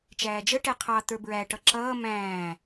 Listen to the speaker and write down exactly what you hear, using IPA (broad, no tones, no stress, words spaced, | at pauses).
t͡ʃæːd͡ʒə ʈɛqʰɑ t̪ə˞bɹæ ʈʌǁʌː mæ̃ː